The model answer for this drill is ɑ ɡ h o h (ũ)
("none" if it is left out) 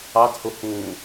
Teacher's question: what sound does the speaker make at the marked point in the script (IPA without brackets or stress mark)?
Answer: ũ